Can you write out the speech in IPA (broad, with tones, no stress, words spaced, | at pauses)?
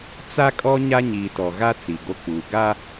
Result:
t͡sa˦kʼɔ˦ ɲa˦ɲiː˨tɔ˨ɣa˦ t͡si˨ɡo˦k͡puː˨ ɡa˦